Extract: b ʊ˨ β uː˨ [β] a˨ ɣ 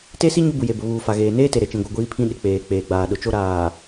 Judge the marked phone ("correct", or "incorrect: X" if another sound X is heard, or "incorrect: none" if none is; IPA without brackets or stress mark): incorrect: f